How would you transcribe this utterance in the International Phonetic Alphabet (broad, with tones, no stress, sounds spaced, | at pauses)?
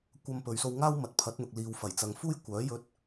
kʷ ɐ˧ m p ɵ˨ ɥ s o˧ w ŋ aː˥ w m ɐ˨ t̚ pʰ ɐ˨˥ t̚ n̪ ʊ˨ k̚ l iː˨ w f ɐ˨˩ j t͡s ɐ˨ ŋ f uː˥ j kʷ œː˨˥ j ɵ˧ t̚